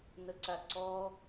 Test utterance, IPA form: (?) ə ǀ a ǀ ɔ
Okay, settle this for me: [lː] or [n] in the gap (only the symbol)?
n